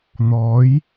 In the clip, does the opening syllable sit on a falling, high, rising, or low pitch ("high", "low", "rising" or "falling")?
rising